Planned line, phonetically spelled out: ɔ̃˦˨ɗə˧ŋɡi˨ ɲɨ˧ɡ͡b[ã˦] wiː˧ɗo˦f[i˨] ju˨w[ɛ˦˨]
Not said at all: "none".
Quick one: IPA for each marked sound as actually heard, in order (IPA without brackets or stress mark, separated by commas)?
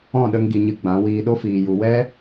ã˨˦, iː˨, ɛ˦